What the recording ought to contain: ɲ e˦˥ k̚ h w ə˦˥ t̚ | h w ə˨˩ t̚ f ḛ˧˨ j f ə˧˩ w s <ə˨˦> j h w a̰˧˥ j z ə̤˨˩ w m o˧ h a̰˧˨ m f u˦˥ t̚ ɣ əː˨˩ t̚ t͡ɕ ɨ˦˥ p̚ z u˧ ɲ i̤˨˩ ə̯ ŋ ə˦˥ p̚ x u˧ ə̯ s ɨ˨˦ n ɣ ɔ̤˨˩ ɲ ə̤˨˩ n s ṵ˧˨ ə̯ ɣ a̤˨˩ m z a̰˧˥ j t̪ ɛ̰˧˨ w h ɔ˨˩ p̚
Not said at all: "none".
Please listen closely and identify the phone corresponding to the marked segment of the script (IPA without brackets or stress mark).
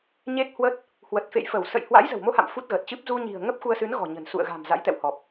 ə̰˧˨